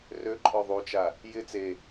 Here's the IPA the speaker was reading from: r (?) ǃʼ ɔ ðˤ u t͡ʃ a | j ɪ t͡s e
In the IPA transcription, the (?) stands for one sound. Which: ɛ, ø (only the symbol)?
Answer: ø